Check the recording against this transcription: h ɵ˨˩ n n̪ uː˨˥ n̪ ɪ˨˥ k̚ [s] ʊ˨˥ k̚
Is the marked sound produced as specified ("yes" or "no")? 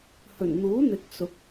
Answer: yes